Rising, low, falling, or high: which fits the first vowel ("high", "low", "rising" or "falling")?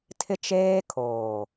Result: high